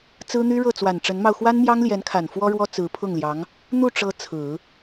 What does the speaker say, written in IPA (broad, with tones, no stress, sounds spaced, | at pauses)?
t͡s ɹ̩˥ n̪ y˥ ɻ ɤ˥˩ t͡s w a˨˩ n ʈ͡ʂ ə˧˥ n m ɑ˧ ʊ̯ x w a˥ n m j ɑ˥ ŋ l j ɛ˧˥ n kʰ a˨˩ n f w ɔ˥ ɻ w ɔ˥ t͡s ɹ̩˧˥ pʰ ʊ˥˩ ŋ l j ɑ˧˥ ŋ | n̪ u˥˩ ʈ͡ʂ ɤ˧˥ t͡sʰ ɹ̩˨˩˦